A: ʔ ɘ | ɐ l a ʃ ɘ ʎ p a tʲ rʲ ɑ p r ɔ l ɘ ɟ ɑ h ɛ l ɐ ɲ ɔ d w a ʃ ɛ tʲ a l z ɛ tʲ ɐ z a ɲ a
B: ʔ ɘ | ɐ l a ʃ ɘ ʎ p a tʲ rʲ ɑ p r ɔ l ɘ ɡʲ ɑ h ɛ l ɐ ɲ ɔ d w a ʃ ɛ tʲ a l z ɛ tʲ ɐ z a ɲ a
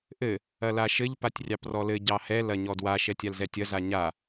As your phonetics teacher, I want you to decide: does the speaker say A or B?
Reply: A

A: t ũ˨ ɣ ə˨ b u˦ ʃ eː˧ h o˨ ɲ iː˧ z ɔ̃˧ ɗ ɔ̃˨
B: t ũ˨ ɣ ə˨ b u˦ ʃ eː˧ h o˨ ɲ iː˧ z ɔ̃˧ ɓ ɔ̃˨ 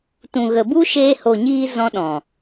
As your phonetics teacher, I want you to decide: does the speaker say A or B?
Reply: A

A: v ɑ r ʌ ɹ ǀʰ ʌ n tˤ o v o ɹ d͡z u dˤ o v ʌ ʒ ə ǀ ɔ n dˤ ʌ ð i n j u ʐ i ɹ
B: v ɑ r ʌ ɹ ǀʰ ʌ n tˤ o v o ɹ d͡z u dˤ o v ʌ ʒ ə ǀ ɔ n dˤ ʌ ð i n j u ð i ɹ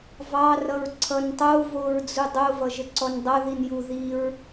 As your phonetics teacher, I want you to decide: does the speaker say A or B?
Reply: B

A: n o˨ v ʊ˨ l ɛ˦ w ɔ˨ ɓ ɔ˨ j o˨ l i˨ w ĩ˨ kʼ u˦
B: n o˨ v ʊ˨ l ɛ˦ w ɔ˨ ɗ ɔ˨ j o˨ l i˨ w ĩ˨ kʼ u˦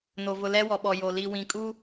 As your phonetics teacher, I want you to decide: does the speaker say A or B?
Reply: A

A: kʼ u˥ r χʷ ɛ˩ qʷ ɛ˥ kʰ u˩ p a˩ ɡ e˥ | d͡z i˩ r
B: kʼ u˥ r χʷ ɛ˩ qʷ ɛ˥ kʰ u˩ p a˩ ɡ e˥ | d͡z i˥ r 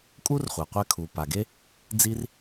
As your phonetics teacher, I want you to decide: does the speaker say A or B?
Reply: B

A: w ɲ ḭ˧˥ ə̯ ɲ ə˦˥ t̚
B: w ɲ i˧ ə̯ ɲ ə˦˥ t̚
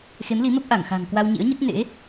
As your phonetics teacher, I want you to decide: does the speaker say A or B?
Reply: A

